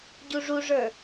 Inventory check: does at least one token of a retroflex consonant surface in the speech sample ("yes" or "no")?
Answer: yes